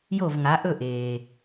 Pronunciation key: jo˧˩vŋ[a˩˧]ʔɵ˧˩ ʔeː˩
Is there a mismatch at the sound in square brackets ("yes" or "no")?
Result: no